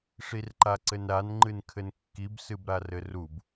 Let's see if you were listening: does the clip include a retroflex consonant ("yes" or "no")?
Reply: yes